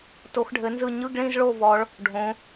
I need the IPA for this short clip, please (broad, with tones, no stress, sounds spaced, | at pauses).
t o˨˦ x ɖʱ ɘ˨˦ n z ɯ˥˧ ɲ ɯ˧˥˧ ɡ ɭ ĩ˥˧ z ɭ o˥˧ v ɔ˨˦ ɭ | ɖʱ õ˨˦